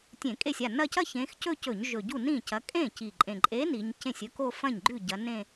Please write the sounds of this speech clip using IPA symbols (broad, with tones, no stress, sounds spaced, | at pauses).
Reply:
tʲ ẽ˧˩˧ kʼ e˥˩ sʲ a˥˩ n ɐ˥˧ c ɐ˥ ç ẽ˨˦ x c ɵ˥˧ c ɵ˧˩˧ ɲ ʒ ɵ˨˩ ɟ u˥˩ n ĩ˥˩ c ɐ˨˦ kʼ ẽ˥˩ c i˨˩ ǃʼ ẽ˨˩ ǃʼ e˨˦ n i˨˦ ɲ c ẽ˥˩ sʲ ɵ˥ k o˥˧ f ɐ̃˥˩ ɲ ɡ͡ǃ ʉ˥˩ ɟ ɐ˨˦ n ẽ˥˧